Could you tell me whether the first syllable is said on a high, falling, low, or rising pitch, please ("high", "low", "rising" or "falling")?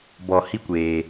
low